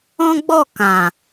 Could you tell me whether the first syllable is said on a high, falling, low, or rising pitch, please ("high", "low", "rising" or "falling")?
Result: high